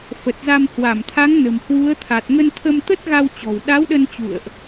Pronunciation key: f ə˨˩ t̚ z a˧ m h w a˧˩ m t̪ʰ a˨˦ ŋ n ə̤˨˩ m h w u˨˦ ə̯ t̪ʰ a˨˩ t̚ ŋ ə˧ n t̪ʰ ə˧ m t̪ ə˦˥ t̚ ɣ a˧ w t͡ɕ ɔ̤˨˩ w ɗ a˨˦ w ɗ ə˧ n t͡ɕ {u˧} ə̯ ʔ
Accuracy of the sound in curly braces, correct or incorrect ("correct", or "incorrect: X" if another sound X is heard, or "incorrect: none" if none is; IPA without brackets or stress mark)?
incorrect: ṵ˧˨